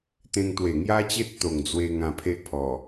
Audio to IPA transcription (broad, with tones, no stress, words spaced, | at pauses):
t̪ẽ˧ŋt̪we˨˩ŋja˦t͡ɕe˦t̚ t̪o˨˩ŋd͡zwe˧ ŋã˧pʰe˦ʔpʰɔ˨˩